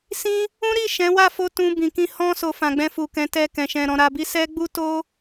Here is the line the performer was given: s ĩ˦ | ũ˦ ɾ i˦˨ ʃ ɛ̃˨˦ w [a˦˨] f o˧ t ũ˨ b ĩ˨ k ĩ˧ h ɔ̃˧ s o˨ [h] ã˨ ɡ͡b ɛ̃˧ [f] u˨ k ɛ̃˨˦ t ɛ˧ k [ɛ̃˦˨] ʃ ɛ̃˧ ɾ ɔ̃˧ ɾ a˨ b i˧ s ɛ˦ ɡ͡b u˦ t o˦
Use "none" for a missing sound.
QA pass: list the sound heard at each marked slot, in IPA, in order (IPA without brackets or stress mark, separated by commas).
a˦˨, f, f, ɛ̃˨